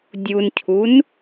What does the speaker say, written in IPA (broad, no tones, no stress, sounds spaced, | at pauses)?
dʲ u n cʰ u n